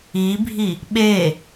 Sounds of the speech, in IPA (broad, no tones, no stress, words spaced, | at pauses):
ibʱi | ɓe